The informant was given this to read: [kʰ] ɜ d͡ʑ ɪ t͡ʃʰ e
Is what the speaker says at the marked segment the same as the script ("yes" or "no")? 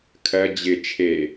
yes